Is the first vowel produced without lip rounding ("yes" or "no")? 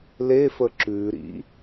yes